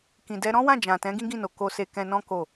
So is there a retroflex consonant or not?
no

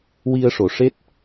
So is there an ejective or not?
no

